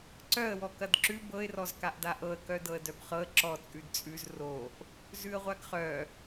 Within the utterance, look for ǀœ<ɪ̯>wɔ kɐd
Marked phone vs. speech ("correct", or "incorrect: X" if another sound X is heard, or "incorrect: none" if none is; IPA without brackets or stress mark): incorrect: ə̯